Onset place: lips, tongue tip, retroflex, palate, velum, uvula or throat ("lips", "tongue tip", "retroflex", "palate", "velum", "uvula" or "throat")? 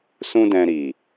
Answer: tongue tip